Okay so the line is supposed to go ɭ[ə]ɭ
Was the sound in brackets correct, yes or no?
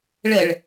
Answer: yes